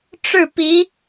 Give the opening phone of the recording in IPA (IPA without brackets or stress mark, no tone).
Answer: ʈ͡ʂ